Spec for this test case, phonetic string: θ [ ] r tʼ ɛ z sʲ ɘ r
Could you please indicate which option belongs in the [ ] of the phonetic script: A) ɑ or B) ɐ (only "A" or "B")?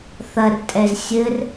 B